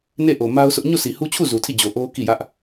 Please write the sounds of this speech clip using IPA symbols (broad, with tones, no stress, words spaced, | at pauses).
ne˦˨ʔo˨ ma˦ʊ̯sʰʊ˦ʔ ɲo˦˨si˨hu˦t͡ɕʰu˦˨ zu˨tʰi˦˨d͡ʑo˨ ʔo˦ ki˦˨jä˦ʔ